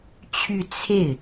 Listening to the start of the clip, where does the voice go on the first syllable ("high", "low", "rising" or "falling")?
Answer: falling